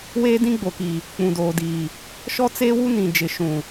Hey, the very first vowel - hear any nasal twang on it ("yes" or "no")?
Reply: no